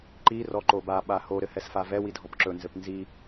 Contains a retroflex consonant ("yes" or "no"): no